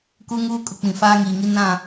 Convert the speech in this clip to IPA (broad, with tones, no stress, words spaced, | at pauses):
ku˦ŋuː˦kʼʊ˨ k͡pĩ˨faː˦ŋiː˨ŋi˦ nã˦˨